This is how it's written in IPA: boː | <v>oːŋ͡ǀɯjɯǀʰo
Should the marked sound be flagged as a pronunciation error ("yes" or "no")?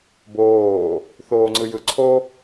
yes